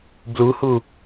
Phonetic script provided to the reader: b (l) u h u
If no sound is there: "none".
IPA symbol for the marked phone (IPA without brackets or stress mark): l